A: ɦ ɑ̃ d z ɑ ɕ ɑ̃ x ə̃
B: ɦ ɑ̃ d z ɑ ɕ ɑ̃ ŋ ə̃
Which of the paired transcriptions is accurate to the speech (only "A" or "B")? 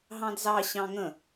B